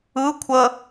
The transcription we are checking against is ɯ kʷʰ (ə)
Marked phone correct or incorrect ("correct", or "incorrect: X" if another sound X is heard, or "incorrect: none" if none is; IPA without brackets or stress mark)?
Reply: correct